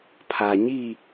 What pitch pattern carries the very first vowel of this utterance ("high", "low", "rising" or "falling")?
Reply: low